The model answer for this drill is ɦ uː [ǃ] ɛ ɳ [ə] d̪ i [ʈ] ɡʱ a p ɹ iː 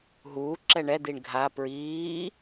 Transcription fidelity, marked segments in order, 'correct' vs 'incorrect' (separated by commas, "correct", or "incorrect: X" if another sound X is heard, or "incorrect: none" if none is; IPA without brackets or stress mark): incorrect: ǁ, incorrect: ɛ, incorrect: ɳ